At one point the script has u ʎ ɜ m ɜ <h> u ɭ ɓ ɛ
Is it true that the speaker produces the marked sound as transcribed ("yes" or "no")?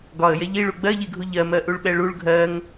no